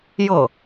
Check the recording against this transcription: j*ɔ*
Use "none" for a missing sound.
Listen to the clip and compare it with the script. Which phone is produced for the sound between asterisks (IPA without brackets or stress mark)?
ɤ